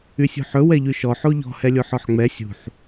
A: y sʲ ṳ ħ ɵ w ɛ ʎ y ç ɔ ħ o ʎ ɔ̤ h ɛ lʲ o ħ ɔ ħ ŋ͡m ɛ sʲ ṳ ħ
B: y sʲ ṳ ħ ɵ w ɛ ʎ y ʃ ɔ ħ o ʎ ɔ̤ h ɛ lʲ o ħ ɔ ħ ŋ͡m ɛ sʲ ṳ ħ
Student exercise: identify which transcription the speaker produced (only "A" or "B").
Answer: B